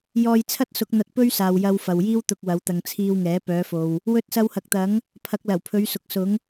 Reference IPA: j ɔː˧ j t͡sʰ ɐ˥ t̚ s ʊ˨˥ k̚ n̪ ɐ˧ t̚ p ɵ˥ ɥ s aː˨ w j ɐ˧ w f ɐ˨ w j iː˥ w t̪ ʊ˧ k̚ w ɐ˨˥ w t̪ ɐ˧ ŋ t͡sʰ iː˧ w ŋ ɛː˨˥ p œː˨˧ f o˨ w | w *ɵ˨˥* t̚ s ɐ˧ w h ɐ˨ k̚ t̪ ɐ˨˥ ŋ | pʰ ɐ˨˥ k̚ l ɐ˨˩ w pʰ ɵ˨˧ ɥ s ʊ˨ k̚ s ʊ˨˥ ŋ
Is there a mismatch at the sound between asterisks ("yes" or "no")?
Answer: yes